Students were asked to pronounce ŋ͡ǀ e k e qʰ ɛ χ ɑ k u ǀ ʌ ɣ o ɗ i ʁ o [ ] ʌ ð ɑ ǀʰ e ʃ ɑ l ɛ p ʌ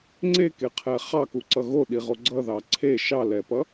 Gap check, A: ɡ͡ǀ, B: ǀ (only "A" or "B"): A